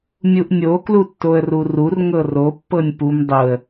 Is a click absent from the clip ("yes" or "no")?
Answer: yes